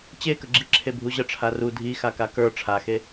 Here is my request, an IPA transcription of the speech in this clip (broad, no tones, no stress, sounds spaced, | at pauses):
t͡ɕ e k ə ɡ͡ǁ i ǁʰ e bʱ u ʑ ə ʈ͡ʂʰ a r u dʱ i x a k a k ə˞ ʈ͡ʂʰ a x e